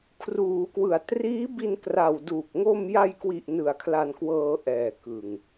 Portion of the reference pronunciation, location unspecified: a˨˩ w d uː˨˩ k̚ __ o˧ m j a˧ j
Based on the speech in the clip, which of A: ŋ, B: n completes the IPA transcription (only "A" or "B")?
A